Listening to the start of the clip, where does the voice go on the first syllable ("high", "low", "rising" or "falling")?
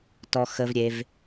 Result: low